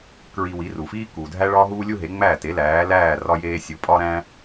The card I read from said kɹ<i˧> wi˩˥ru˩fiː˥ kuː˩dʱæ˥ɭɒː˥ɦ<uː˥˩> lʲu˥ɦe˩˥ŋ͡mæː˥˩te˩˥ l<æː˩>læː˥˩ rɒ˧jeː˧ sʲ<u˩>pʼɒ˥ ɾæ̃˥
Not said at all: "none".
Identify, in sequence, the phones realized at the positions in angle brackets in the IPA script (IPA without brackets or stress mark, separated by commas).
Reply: i˧, uː˥, æː˩˥, u˩˥